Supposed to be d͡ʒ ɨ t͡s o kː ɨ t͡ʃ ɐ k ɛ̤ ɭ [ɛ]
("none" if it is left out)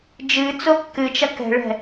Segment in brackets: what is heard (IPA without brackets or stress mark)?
ɛ̤